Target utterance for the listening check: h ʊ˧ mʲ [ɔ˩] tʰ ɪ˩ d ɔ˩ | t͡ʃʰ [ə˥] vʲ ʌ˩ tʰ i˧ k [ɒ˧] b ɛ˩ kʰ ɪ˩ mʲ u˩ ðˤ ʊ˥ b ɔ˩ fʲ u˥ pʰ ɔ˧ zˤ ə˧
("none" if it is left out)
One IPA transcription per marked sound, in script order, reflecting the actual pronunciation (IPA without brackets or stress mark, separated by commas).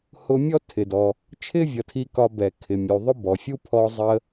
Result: ɔ˥, ɪ˥, ɒ˧